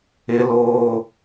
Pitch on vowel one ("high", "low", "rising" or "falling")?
high